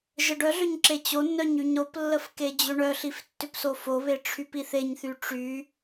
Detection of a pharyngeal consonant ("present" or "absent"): absent